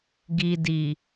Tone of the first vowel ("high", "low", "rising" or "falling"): low